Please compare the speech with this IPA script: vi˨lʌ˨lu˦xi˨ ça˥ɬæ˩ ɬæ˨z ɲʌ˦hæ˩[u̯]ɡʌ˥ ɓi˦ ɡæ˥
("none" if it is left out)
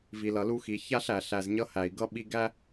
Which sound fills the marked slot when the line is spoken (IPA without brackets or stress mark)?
i̯